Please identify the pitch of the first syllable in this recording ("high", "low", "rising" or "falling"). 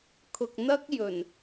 low